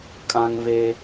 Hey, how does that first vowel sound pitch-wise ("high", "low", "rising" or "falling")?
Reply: high